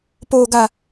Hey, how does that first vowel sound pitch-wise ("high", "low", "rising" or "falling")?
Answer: low